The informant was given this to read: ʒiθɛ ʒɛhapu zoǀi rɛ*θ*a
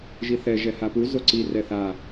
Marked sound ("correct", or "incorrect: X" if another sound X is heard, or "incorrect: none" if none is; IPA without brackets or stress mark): correct